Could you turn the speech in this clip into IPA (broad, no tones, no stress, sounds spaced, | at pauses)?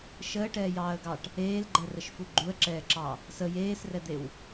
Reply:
ʃ əː ʈ ɛː j ɑː ə̯ ɡ ɑ ʈ | eː l ɡ͡ǃ ɛ r ə ʃ f u ɡ͡ǃ u ə̯ ǁ ɛː ǁ ɑ | s ə j eː s r ɛ d̪ e w